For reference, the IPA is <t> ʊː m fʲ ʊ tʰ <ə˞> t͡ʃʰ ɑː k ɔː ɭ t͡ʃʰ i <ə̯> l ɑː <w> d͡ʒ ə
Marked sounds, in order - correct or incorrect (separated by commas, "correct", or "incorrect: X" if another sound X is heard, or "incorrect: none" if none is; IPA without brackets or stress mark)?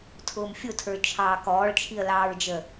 incorrect: tʰ, correct, correct, incorrect: ɹ